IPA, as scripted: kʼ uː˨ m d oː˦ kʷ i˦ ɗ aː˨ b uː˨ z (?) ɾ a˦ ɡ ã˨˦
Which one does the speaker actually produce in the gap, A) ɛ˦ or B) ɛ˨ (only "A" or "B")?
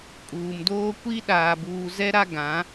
A